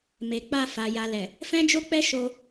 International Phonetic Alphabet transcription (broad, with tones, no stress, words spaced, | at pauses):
me˨k͡pa˧ fa˨ja˨lɛ˨ | fɛ̃˦d͡ʒo˦k͡pɛ˦ ʃo˧